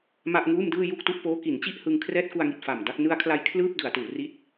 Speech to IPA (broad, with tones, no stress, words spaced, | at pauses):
ma˥˩ʔŋuː˥˩mdɯː˥˩ ju˥˩k̚tu˥˩ʔpoː˦˥ ki˩˦nt͡ɕi˥˩ʔ hɯ˧ŋkʰrɛː˥˩t̚ ku˧a̯ŋi˨˩t̚faː˨˩m da˥˩k̚ nɯ˧a̯kʰla˧j kʰlɯː˥˩p̚ dɯ˩˦a̯tuː˩˦ri˥˩t̚